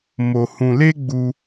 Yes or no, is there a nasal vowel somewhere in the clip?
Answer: yes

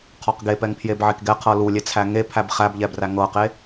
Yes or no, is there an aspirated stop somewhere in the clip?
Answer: yes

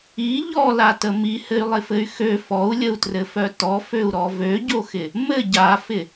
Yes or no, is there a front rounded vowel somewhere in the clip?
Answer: yes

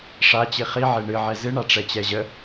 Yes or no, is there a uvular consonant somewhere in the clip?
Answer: yes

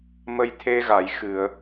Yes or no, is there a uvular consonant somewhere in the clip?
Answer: no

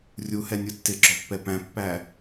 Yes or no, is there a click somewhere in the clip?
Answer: yes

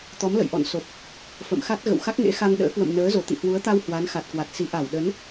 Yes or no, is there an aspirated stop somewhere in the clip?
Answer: no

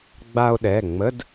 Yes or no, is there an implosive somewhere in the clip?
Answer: yes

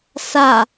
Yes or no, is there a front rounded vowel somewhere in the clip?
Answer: no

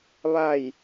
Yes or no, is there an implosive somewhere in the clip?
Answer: no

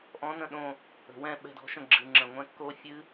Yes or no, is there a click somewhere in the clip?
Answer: yes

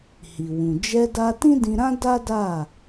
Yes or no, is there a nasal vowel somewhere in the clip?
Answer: yes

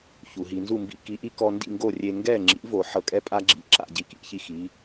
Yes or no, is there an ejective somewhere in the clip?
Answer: yes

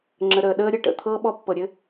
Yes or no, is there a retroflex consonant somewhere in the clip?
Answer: yes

